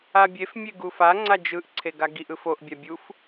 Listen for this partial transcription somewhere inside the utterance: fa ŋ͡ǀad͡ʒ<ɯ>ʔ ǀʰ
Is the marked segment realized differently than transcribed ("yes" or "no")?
no